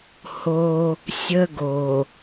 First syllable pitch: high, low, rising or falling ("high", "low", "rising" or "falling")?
high